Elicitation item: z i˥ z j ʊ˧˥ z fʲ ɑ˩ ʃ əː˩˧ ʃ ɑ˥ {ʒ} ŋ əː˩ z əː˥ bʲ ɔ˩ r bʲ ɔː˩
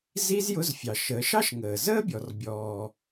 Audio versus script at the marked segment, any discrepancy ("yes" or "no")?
yes